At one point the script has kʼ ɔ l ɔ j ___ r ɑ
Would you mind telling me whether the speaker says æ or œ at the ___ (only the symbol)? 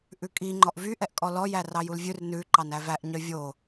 æ